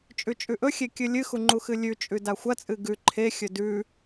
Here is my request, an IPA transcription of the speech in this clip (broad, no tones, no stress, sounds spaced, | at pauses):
t͡ʃʼ ʉ t͡ʃʼ ʉ ʔ ɵ xʲ e kʲ ɨ lʲ ɨ x u ŋ͡ǃ u x ɨ lʲ ʉ t͡ʃʼ ʉ d a xʷ ɐ t͡sʼ ɨ ɡ ʉ ǃʰ e xʲ ɵ d ʉ